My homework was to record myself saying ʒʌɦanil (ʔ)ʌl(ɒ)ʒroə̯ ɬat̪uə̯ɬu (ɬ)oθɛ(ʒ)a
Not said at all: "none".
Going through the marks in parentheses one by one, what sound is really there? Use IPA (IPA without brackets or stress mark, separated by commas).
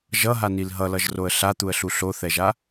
ɦ, ʌ, ɬ, ʒ